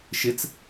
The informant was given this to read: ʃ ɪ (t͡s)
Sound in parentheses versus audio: correct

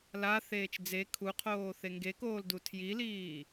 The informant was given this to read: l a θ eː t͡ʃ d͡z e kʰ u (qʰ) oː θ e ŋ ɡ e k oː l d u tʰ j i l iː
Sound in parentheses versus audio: correct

